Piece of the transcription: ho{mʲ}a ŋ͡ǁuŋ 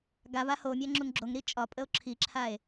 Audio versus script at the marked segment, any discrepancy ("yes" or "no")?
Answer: no